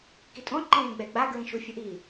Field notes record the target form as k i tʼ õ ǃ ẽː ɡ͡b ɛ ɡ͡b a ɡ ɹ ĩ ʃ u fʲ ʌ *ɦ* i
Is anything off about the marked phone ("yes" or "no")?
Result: yes